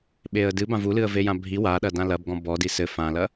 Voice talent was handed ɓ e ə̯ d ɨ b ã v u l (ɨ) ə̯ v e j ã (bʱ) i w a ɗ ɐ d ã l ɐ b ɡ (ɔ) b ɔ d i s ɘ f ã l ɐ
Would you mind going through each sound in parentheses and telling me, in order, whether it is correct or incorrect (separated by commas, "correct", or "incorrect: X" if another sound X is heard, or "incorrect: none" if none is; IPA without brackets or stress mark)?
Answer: correct, correct, incorrect: ɔ̃